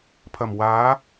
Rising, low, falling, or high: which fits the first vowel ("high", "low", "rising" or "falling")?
low